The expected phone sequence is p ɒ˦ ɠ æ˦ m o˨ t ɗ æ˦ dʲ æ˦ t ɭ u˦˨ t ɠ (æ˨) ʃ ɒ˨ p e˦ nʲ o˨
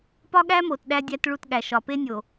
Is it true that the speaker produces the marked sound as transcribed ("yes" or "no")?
yes